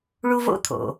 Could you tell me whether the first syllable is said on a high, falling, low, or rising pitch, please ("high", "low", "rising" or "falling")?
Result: high